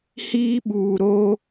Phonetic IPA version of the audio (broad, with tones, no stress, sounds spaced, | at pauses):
h iː˦ ɓ uː˨ ɾ o˦